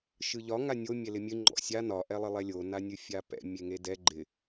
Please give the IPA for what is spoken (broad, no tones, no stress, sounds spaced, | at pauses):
ʃ ɯ ʎ ɒ ŋ a nʲ o mʲ ɛ l ɪ mʲ ɨ ŋ͡ǃ ɔ̰ sʲ a n ɒ ʔ ɛ lˠ ɪ lˠ ɛ lʲ o n a nʲ ɨ fʲ a p ɛ̰ mʲ e ŋ e d ɛ ɡ͡ǃ ɪ